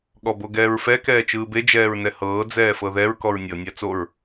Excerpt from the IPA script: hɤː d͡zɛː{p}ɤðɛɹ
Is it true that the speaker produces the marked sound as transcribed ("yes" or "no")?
no